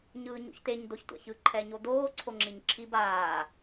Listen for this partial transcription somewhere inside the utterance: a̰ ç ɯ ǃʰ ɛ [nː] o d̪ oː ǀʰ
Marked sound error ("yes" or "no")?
yes